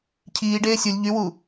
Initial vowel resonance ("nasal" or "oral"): oral